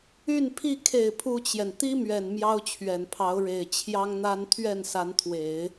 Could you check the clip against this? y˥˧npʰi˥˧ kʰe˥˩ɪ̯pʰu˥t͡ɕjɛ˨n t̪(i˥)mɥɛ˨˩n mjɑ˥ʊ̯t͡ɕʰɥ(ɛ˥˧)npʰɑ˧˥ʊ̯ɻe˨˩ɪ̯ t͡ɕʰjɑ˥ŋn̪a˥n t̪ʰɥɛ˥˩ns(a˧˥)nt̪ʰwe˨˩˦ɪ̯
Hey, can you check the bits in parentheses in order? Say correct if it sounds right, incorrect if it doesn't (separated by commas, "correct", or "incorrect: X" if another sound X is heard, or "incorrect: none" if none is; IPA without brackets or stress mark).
correct, incorrect: ɛ˨˩, correct